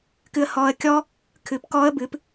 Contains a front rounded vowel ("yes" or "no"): no